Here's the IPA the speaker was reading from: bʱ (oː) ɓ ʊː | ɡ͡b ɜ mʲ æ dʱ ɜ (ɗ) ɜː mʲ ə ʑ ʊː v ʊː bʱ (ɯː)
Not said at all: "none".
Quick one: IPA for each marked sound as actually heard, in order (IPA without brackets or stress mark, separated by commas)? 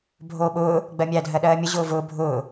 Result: oː, ɗ, ʊː